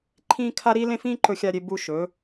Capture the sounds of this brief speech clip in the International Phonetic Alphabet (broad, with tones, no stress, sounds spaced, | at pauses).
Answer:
ǃʰ ĩː˥ kʰ a˥ ɾ i˥ l ẽ˥ f ĩː˥ ǃ ɵ˥ xʲ a˥ ɾʲ e˥ b u˥ ʃ ɵ˨˥